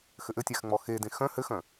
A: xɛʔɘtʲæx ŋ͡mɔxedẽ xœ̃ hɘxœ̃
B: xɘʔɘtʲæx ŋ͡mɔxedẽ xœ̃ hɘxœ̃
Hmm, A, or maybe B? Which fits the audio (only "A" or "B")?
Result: B